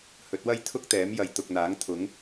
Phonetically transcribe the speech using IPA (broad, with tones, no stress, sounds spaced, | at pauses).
h ɵ˨˥ t̚ w ɐ˥ j t̪ʰ ʊ˥ k̚ t̪ ɛː˨˥ m j ɐ˨˧ j t̪ ʊ˨ k̚ n̪ aː˨˥ ŋ t̪ʰ ʊ˨˥ ŋ